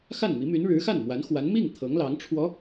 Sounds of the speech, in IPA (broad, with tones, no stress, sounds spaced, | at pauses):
x a˥˩ n m i˧˥ m y˧˥ n ɻ ɻ̩˧˥ x a˥˩ n m w a˧˥ n x w a˧˥ n m i˥˩ ŋ t̪ʰ ɤ˧˥ ŋ l ɑ˧˥ ŋ ʈ͡ʂʰ w ɔ˧˥